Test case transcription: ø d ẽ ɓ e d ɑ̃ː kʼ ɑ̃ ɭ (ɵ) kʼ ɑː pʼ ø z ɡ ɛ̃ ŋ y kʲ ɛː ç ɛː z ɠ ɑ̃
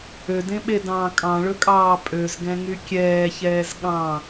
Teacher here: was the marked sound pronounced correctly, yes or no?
yes